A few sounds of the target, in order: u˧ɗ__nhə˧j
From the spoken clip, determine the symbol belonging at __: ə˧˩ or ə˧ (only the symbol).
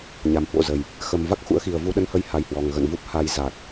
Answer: ə˧